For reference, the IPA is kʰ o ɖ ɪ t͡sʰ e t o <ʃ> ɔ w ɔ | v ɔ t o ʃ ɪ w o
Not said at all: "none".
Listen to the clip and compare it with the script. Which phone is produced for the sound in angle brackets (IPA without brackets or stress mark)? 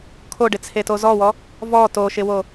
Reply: z